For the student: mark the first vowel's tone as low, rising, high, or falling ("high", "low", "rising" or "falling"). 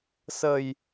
low